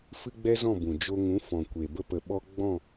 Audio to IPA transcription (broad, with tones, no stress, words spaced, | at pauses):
fɨ˦ɡ͡bɛ˦zɔ̃˦˨ bũ˨ d͡ʒo˧ŋũ˨˦fɔ̃˨ kʷe˨ bə˧pə˨ ɓɔ˧ ɡ͡bɔ̃˦˨